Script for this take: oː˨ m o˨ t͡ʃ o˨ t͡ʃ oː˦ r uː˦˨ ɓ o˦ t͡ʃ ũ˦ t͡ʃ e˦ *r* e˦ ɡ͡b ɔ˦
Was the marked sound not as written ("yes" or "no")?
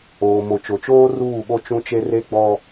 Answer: no